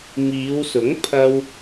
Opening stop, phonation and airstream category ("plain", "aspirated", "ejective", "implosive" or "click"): aspirated